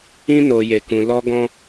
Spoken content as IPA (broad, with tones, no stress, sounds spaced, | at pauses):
ĩ˦ n o˧ j e˧ k ũ˧ l ɔ˧ ɡ ɔ̃˦